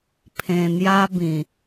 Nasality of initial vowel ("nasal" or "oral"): nasal